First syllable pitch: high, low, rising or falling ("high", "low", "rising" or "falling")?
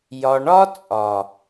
low